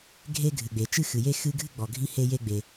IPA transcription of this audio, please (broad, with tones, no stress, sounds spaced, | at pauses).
ɡʱ e˥ ɡʱ ɨ˩ ɡ͡b e˩ t͡ʃ ɨ˥ x ɨ˩ j e˥ x ɨ˥ ɡʱ ɨ˥ ɡ͡b ɔ˩ ɡʱ i˥ h e˥ j e˥ ɡ͡b e˩